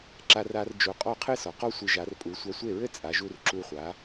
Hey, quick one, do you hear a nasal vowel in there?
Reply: no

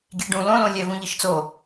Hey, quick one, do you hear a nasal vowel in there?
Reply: yes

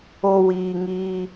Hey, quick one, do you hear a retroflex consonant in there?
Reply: no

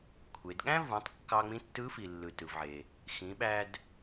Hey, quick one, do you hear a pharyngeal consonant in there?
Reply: yes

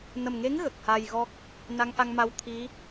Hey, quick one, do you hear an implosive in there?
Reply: no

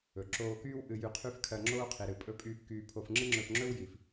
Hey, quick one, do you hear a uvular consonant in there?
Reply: yes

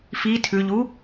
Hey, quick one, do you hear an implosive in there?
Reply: no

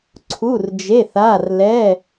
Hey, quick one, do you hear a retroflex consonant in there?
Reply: no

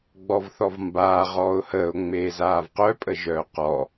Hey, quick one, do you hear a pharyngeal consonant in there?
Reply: no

